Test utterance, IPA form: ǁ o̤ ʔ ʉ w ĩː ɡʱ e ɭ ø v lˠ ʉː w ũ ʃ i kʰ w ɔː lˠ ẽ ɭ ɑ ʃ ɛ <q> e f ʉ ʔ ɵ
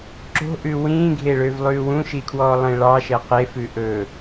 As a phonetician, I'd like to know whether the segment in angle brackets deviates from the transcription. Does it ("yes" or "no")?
no